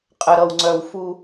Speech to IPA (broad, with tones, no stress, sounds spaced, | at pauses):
qʼ ə˨ ɾ ʌ˨ w ŋ͡ǀ œ˨ w f u˦